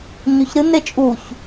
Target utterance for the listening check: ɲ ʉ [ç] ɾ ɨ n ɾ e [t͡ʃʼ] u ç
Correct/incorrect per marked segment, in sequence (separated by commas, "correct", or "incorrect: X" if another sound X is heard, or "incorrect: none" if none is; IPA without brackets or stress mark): correct, correct